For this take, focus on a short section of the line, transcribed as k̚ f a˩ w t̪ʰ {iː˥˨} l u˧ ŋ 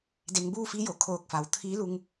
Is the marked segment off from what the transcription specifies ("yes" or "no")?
yes